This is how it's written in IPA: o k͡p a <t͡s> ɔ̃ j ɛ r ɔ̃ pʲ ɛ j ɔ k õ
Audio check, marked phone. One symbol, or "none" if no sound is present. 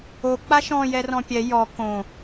ʃ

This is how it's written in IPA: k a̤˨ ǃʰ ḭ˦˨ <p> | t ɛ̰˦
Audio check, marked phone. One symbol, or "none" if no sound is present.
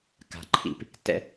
p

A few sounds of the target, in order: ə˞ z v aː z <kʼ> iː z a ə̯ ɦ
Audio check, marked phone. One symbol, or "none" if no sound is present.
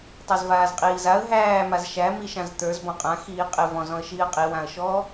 qʼ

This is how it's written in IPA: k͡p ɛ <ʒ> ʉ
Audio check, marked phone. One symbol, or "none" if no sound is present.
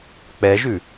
ʒ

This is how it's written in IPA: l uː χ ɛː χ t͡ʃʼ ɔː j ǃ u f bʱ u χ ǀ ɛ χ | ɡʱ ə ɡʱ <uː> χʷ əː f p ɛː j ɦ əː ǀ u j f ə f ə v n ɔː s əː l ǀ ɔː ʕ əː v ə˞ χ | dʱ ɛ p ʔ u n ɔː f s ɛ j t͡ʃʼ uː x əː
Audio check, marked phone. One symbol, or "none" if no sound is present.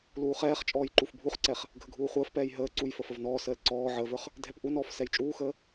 uː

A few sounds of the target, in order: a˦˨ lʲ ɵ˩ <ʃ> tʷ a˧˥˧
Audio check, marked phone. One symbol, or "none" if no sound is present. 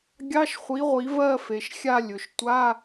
ʃ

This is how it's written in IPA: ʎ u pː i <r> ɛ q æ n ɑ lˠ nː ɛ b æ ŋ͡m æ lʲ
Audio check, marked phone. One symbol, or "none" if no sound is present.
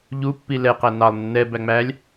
l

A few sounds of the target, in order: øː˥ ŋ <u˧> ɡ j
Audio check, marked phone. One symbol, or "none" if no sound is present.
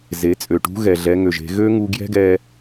u˧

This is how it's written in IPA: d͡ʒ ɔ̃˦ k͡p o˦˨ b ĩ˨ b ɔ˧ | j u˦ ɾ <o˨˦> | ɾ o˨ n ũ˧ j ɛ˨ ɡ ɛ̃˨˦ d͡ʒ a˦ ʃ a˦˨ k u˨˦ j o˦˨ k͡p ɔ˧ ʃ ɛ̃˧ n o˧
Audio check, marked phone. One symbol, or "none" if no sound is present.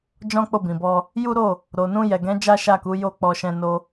o˦˨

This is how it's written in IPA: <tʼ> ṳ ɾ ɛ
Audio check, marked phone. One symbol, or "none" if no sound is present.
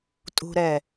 tʼ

